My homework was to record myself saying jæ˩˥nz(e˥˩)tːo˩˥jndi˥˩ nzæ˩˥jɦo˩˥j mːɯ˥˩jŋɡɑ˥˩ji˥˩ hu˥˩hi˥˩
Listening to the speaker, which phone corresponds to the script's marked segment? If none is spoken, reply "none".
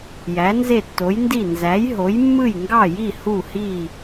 e˥˩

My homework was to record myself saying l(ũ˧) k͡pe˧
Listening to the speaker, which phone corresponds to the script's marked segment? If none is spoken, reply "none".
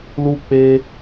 u˧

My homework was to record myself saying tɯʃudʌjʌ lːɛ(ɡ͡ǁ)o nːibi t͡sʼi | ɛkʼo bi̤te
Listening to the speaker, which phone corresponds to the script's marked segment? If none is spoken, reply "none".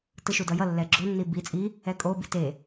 ɡ͡ǁ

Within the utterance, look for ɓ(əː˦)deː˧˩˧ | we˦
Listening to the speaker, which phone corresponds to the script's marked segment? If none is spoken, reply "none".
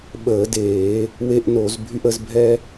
əː˧˩˧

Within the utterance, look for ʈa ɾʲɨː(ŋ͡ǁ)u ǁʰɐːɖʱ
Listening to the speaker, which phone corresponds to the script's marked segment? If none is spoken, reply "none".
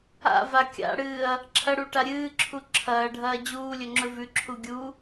ǁʰ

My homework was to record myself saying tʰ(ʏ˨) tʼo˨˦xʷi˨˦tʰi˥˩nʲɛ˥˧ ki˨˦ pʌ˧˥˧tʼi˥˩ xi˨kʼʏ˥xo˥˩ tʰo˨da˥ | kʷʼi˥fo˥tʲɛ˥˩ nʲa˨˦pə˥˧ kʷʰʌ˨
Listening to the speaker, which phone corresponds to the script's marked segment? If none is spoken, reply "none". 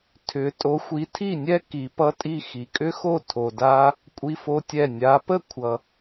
ʏ˨˦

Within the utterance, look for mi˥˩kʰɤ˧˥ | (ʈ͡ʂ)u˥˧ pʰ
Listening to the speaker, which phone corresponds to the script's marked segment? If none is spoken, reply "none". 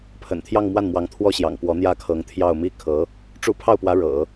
ʈ͡ʂ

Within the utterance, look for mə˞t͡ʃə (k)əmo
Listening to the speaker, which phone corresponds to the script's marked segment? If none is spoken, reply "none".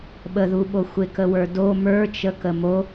k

